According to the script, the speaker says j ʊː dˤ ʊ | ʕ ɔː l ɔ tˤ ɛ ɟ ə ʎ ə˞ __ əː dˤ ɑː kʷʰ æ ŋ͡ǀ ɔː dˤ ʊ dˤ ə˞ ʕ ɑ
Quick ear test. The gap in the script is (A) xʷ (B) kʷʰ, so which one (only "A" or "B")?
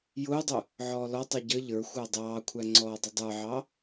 A